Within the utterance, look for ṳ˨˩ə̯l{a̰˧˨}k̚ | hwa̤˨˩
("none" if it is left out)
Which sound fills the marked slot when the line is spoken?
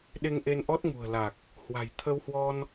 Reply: a˨˩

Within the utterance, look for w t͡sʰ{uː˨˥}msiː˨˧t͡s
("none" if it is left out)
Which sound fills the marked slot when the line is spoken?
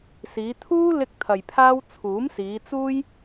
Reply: uː˨˥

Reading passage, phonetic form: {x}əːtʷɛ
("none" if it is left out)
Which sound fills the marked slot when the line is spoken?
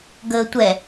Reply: ɡ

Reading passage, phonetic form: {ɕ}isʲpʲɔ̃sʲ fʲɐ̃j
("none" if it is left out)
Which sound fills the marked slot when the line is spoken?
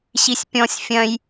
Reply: ɕ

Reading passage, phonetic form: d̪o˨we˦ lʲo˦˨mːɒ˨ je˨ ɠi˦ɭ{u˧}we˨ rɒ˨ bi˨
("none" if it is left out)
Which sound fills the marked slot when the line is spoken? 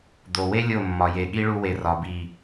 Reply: u˧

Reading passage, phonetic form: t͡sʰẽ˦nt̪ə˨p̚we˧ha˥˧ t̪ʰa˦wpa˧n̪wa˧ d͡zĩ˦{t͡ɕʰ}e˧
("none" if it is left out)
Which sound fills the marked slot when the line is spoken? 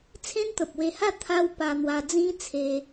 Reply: t͡sʰ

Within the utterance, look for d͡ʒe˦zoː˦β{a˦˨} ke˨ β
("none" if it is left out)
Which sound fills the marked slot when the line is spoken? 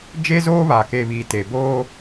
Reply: a˨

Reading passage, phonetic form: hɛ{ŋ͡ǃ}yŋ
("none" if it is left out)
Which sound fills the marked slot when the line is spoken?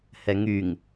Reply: ŋ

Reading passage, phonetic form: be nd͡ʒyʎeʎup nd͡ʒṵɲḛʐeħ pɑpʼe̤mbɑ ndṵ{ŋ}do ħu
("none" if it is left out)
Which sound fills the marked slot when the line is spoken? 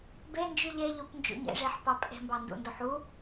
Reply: n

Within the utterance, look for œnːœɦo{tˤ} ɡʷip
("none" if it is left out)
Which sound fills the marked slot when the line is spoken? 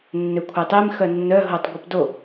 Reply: tˤ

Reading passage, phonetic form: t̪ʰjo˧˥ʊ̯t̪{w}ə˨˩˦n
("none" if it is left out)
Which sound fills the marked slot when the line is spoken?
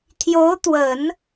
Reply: w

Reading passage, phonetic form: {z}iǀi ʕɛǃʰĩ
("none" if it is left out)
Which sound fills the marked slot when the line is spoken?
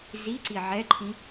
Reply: z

